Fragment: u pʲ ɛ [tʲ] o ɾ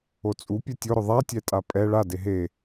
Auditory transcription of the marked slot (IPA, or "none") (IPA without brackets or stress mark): tʲ